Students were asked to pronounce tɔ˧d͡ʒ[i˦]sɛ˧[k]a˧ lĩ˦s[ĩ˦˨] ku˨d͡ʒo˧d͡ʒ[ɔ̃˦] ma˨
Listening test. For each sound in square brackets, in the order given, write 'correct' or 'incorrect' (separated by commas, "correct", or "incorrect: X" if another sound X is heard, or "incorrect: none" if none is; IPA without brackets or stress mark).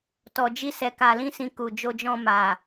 correct, correct, incorrect: ĩ˧, incorrect: ɔ̃˧